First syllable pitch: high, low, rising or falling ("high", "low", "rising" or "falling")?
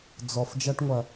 low